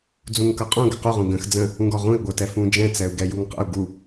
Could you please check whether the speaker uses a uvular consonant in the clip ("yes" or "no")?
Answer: yes